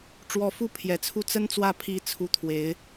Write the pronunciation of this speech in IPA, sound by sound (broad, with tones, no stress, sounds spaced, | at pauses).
ʈ͡ʂ w ɔ˧˥ f u˥ pʰ j ɛ˨˩ t͡sʰ u˥˩ t͡s ə˥ n t͡s w ä˥˩ pʰ i˥ t͡sʰ u˥˩ t̪ʰ w e˧˥ ɪ̯